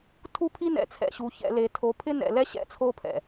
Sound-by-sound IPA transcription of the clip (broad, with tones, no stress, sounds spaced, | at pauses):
tʰ u˦ pʰ i˦ n ɛ̰˨ t͡sʰ ɛ̰˨ ɕ u˨ ç ɛ̰˨ l e˨ tʰ o˨˦ pʰ ɪ˦ n ɛ̰˨ l ɛ˦ ɕ ɛ̰˦ t͡sʰ o˦ pʰ ɛ̰˨